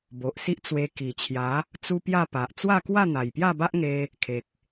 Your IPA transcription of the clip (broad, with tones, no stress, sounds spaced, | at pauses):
b o˨ ʔ s i˦ ʔ t͡s w e˧ k i˨˩ t͡ɕʰ j a˨˦ | t͡s u˦ p j a˥˧ p a˨ ʔ t͡s w a˥˧ k w a˥˧ n̪ a˨˩ j p j a˥˧ b a˦ ʔ ŋ e˧ | kʰ e˨ k̚